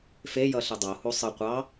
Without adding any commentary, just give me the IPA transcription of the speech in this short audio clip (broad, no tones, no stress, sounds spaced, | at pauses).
f e j ʌ ɬ ɨ dˤ o h u sˤ ɨ qʷ ɑ